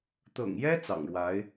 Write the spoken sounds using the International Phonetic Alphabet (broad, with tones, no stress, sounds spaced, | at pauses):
t̪ ɤ̰˨˩ ŋ j ɛ˥ t͡s ɑ̰˨˩ ŋ ɻ w a˧˥ ɪ̯